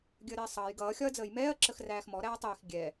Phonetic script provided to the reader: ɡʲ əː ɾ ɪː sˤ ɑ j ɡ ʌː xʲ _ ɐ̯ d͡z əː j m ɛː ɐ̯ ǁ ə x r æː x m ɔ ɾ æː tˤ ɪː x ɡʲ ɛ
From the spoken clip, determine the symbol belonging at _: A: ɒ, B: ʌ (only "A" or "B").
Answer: A